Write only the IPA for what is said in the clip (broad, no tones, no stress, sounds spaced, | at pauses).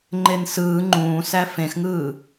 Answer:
ŋ͡ǃ e n s ɯː ŋ͡ǃ ũː s æ f ẽ x ŋ ɯː